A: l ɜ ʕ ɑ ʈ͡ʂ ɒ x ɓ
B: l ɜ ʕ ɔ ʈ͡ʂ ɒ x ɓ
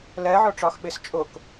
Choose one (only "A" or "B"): B